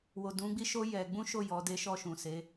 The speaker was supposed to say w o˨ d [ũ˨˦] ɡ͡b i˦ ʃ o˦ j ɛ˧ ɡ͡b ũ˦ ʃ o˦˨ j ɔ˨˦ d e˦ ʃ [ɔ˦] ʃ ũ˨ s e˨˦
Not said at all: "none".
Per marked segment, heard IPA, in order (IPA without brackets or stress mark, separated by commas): ũ˨˦, ɔ˦˨